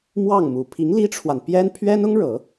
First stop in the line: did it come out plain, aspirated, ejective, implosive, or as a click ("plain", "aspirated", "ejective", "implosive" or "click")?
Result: aspirated